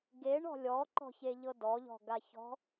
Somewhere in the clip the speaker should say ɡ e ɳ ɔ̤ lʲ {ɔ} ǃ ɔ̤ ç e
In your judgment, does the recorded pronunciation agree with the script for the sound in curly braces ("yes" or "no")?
yes